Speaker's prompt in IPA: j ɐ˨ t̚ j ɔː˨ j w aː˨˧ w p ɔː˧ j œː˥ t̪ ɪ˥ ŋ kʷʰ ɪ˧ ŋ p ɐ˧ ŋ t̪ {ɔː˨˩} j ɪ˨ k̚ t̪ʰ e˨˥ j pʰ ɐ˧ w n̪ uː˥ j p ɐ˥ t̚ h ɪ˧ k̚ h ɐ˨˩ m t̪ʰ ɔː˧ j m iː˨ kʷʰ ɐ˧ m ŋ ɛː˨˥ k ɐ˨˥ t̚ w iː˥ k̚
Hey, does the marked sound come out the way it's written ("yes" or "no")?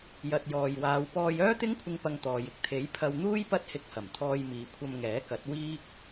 no